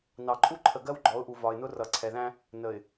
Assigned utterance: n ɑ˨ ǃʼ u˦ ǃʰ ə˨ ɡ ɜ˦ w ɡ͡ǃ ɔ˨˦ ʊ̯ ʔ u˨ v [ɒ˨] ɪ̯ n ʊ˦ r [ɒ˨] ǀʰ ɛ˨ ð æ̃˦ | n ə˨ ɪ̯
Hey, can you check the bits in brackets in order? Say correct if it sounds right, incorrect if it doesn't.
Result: correct, incorrect

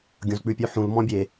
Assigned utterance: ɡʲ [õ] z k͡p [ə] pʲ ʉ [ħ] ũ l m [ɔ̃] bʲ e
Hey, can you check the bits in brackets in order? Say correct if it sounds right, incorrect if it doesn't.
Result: correct, incorrect, correct, correct

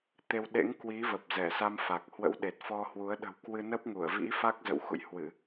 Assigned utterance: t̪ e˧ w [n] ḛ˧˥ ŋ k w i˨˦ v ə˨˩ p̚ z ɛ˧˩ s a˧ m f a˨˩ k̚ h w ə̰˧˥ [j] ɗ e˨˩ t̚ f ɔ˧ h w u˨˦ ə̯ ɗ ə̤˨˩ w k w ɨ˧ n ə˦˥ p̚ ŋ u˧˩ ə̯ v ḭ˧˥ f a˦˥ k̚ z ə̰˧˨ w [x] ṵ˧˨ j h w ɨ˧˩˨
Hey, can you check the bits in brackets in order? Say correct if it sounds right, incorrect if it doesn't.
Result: incorrect, incorrect, correct

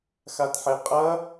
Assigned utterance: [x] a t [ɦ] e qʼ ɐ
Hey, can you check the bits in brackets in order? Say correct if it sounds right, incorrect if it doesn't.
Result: correct, incorrect

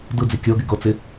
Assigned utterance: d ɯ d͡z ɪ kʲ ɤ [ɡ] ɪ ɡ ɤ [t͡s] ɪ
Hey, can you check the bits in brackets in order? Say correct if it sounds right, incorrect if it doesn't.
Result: correct, correct

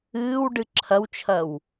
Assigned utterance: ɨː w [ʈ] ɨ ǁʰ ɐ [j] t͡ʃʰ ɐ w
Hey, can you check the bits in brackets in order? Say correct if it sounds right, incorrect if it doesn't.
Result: incorrect, incorrect

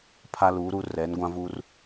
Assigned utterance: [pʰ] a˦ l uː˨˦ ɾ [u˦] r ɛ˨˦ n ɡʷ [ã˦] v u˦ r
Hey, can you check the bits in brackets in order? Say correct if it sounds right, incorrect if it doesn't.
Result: correct, correct, correct

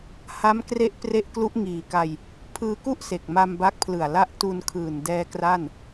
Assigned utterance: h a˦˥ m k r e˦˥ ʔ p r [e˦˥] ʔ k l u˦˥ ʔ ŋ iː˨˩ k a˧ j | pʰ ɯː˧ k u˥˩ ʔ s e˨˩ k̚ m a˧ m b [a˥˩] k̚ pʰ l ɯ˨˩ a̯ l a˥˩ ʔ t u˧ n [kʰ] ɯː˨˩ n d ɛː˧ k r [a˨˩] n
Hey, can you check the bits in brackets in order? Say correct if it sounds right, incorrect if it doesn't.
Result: correct, incorrect, correct, incorrect

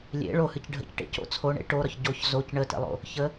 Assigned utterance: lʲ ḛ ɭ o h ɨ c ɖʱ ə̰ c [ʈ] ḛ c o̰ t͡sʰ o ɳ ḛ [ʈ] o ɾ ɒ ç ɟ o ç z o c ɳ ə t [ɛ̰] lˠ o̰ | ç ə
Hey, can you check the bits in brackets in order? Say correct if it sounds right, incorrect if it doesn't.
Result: correct, correct, incorrect

